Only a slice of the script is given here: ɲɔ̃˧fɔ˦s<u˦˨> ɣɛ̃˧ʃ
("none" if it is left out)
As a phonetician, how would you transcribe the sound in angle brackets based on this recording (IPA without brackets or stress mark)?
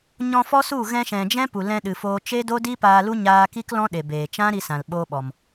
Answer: u˦˨